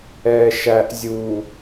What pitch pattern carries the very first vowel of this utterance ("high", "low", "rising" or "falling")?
low